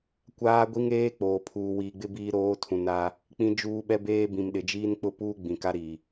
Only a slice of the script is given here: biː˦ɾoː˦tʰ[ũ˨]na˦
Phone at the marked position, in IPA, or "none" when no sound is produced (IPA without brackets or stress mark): ũ˨